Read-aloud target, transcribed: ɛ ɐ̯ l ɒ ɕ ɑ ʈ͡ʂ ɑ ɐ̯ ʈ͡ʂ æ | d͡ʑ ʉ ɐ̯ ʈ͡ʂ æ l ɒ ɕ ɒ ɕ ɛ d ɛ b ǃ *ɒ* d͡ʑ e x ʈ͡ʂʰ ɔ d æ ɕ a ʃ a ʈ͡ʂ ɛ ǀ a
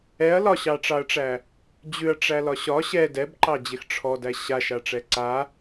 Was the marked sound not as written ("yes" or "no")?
yes